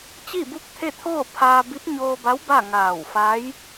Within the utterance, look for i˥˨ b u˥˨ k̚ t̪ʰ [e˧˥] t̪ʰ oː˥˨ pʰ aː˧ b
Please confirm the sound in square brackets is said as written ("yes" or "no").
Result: no